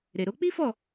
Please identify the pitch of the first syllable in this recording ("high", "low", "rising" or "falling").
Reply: low